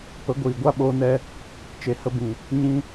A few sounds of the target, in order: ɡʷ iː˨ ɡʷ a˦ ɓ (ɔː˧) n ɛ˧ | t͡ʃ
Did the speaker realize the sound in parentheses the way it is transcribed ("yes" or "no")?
no